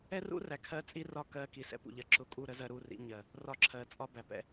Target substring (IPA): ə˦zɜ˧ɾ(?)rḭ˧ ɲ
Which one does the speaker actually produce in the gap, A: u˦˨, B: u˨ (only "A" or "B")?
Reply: A